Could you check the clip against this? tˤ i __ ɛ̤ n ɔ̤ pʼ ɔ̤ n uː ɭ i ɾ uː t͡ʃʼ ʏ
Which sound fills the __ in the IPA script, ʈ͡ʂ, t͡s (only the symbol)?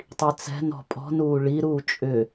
t͡s